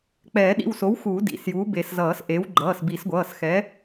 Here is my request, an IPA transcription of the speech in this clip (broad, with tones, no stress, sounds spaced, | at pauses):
k͡p ɛː˨˩˦ ɗ ḭ˩˧˩ w s o˩˥ w x uː˨˩˦ d ḭ˩˧˩ s j uː˩˥ b e˨˩˦ s z ʌː˨˩˦ s ʔ e˩˥ w ɡ͡ǃ ʌː˩˧˩ s b i˨˩˦ s ɡʷ ʌː˩˧˩ s x ɛ˩˥